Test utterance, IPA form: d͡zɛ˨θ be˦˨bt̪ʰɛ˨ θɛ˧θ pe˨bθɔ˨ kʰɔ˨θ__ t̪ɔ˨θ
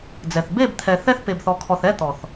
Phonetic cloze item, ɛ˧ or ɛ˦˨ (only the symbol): ɛ˦˨